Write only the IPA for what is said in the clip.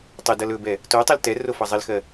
tˤɪdʌl ɵbɛ | totˤɪl tɛrofʌ zˤɪlxɜ

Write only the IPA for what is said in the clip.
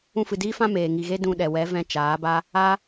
ũ˧fɨ˨diː˦fã˦ meː˨ ŋi˨ɣe˦ dũ˧ɗɛ˨wɛ˨˦vɛ̃˧ t͡ʃaː˨˦ba˦ | a˦

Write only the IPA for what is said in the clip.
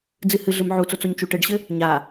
d͡zɨhɨɮɘm ʕut͡sot͡soɲ t͡ʃuʈɘɖɕɘ | ɲa

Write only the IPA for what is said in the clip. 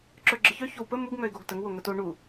ǁœɡ͡ǁəçœ çowpə muɡ ŋœɪ̯ɡoɡtəŋ woŋəto ɳu

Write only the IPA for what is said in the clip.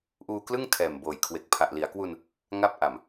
ʔuː˧klɯ˥˩ŋ tʰɛː˨˩mboː˨˩jkʰwe˨˩k̚ pʰa˨˩ʔli˩˦a̯kwu˧n | ŋa˥˩p̚ʔa˨˩m

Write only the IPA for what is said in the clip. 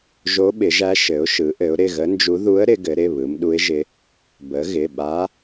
ʒo˧˥ɓɪ˩˧ʒæ˧˥ ʃɘ˩˧ʊ̯ʃɯ˩˧ ʔɘ˩˧ʊ̯ɾɪ˩˧˩ɣə˧˥nd͡ʒu˧˥ ðu˧˥ə̯ ɾɪ˩˧ɡɘ˩˧ɾɪ˩˧˩ βɯ˩˧mɗu˧˥ɪ̯ʒɪ˧˥ | bə˩˧ɣɪ˩˧˩ɓa˧˥

